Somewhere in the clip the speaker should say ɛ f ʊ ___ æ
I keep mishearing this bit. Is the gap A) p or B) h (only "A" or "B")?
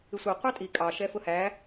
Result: B